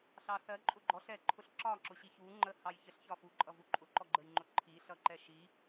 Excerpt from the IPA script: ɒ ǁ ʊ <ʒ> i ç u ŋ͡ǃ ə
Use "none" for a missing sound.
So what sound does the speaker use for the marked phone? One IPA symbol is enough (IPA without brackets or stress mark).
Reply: ɕ